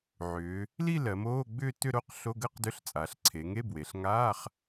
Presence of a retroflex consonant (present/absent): absent